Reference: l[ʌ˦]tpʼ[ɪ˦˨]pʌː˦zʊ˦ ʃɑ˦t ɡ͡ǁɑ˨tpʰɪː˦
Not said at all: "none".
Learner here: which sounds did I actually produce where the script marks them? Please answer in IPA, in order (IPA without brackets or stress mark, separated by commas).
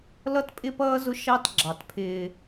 ʌ˦, ɪ˦